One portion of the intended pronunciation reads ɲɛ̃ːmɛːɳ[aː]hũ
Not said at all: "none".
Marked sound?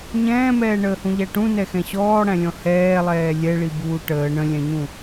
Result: əː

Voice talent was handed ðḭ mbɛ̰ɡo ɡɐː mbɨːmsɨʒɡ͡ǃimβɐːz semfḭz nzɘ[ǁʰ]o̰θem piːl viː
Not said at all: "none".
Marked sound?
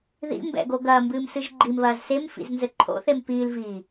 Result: ǃʰ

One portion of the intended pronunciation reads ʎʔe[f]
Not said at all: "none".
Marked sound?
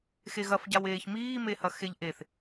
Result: θ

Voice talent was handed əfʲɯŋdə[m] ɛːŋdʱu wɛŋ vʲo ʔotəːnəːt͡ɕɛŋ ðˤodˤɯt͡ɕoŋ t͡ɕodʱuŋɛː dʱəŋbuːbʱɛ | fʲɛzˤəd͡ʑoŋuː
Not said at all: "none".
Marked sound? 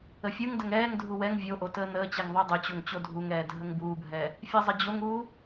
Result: ŋ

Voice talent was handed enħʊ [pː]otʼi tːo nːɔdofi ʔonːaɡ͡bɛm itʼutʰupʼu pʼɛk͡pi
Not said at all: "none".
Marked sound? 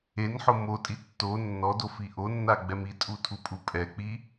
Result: m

